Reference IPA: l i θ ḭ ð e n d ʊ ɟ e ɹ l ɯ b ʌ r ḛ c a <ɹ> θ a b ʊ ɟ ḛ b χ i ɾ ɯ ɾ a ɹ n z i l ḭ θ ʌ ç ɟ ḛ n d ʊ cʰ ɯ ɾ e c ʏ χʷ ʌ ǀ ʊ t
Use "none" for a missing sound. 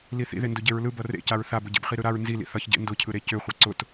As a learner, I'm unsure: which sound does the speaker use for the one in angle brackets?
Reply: ɹ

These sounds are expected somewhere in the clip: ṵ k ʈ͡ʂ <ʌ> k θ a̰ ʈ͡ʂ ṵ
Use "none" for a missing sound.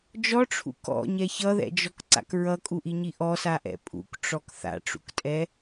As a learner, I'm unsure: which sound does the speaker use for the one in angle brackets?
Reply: ɔ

